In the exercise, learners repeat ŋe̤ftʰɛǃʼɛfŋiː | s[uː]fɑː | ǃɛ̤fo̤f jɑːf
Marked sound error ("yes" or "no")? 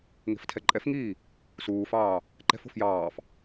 no